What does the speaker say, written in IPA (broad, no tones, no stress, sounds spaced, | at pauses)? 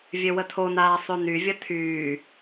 vʲ ø w ə tʰ o n aː sˤ ø n y vʲ ə tʰ yː